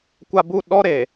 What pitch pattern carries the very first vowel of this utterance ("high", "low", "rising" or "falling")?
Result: low